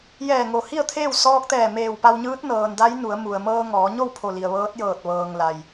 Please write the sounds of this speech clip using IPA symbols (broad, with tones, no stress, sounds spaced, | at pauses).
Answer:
j ɛː˧˩ ŋ o˩ h i˥˨ ə̯ t̪ʰ eː˥˨ w s ɔː˧ k̚ t̪ ɛː˧˩ m eː˧˩ w p a˧ w ɲ ɯː˧˥ t̚ n ɤː˩ n d a˧˥ j n u˩˧ ə̯ m u˩ ə̯ m ɤː˧ ŋ ɔː˩˧ ɲ o˥˨ w pʰ o˧˩ l i˩ ə̯ ʋ ɤː˧˥ t̚ j ɤː˧˩ t̚ ʋ ɤː˩ ŋ l a˩ j